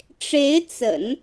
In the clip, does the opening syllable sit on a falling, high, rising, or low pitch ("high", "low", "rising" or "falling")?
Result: rising